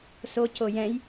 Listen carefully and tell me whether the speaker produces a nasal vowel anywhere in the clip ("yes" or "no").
yes